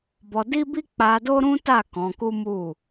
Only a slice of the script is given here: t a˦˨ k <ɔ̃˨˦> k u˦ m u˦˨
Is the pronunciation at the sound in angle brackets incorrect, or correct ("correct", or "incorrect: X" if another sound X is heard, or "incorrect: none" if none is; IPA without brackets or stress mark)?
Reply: correct